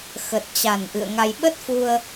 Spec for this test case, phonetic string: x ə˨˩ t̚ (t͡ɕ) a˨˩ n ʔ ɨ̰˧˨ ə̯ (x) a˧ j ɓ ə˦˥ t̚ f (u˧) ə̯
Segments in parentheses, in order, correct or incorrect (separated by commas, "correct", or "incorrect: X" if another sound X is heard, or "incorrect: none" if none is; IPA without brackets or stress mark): correct, incorrect: ŋ, correct